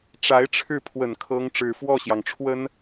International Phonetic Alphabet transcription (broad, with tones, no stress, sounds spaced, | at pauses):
ʈ͡ʂ a˧˥ ɪ̯ ʈ͡ʂʰ ɻ̩˥˩ pʰ w ə˨˩ n kʰ ɤ˥ ŋ ʈ͡ʂ ɻ̩˨˩ f w ɔ˥˩ ɕ j ɑ˩ ŋ ʈ͡ʂʰ w ə˥ n